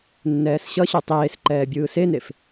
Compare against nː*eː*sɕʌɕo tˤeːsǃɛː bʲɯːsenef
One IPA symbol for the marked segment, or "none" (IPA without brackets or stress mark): ɛː